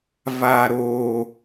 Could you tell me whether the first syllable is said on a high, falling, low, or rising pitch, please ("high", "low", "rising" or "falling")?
low